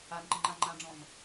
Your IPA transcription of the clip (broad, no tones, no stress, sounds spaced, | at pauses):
a n ǃ ə ŋ͡ǃ a ŋ͡ǃ ã ɖ͡ʐ ɔ̃ n